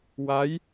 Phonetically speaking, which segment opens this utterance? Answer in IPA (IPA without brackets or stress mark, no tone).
w